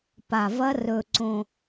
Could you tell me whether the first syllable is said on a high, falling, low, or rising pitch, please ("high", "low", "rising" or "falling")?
low